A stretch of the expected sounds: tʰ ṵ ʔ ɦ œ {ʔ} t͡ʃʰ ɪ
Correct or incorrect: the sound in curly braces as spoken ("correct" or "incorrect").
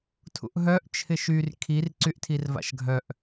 correct